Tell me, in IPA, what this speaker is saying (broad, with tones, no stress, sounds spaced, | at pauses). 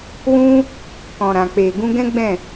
w ũ˦ | k ɔ̃˨ ɾ ã˨ k͡p e˨ ɡ ũ˧ ɡ ɛ̃˦ ɡ͡b ɛ̃˦˨